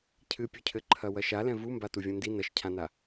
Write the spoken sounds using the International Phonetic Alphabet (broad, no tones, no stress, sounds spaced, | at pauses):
cʰ ɨ pʲ u cʰ ɘ ǃʰ ɐ w ɐ ʃ a l ɛ̃ v u m b a t u vʲ ũ n d i n ɐ ʃ cʰ ã n a